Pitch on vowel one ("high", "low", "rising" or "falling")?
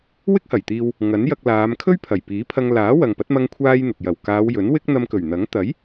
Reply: high